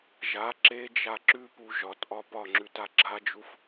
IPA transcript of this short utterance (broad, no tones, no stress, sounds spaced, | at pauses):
ʒ a ǁ e d͡ʒ a ǁ ʉ p u ʒ ɒ t ʔ ɒ p ɒ ŋ͡ǁ ʉ t a ɡ͡ǁ a d͡ʒ u f